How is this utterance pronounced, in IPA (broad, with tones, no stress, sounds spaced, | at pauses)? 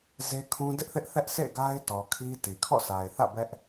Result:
z e˦ kʰ ũ˦ d ɪ˦ ʔ θ ɪ˦ ʔ θ ɛ˦ ʔ s ḛ˦˨ ɡ a˦ ɪ̯ t ɔ˨ kʰ i˦ t i˨ kʰ ɔ̰˦˨ s a˨ ɪ̯ θ ä̰˦˨ b ɛ˦ ʔ